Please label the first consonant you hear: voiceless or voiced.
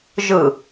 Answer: voiced